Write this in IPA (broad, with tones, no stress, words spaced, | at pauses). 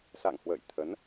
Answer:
sa̰˧˨ŋhwə̰ː˧˨j t̪ʰə˨˦n